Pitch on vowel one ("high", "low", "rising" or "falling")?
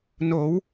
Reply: rising